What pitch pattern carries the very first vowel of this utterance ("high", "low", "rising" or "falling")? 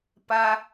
high